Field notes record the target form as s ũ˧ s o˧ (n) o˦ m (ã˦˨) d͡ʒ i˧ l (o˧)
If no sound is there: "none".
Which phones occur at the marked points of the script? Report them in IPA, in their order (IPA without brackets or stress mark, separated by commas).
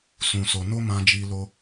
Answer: n, ã˧, o˧